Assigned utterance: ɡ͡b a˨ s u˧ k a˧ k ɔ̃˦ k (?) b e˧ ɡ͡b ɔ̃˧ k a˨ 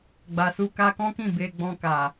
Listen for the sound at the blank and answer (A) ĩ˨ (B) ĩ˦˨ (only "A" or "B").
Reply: B